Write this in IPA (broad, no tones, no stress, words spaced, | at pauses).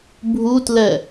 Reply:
bʱutlɛ